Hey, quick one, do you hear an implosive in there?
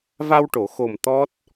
no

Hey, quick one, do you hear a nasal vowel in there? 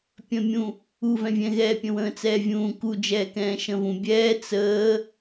yes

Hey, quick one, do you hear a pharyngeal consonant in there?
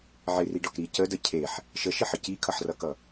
yes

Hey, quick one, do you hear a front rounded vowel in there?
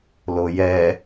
no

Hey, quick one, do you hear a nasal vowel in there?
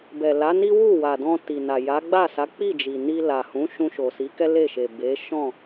yes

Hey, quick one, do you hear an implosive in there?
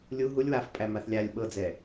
yes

